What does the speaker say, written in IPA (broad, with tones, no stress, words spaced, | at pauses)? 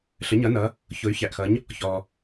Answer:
ɬə˩˧ɲʌ˩˧nʌ˩˧ | çʊ˩˧y̯çæ˩ʔxʌ˩˧ɲ | çɔ˩